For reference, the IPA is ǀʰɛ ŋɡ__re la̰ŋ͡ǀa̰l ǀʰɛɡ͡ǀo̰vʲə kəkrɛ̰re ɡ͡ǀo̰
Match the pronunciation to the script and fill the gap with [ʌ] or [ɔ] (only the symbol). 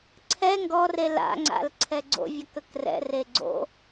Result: ɔ